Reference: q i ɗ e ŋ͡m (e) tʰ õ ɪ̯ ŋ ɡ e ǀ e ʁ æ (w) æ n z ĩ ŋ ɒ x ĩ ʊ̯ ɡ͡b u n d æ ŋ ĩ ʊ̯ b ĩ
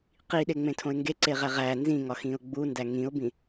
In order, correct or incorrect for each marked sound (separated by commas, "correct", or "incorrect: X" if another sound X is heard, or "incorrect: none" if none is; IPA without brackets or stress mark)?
incorrect: ẽ, incorrect: ʁ